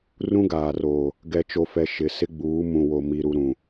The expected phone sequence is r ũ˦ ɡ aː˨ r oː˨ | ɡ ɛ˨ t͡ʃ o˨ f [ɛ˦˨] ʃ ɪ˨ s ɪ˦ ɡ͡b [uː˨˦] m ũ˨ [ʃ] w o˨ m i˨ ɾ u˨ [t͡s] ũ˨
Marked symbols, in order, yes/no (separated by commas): no, yes, no, no